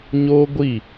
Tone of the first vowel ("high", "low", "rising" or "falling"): high